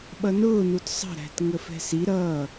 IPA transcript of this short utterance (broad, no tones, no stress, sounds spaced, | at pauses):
ɓ ʌ n ʊː n u t sˤ ə̤ ɾ æ̤ t ŋ ə f ɛ̤ s i ɾ ʌː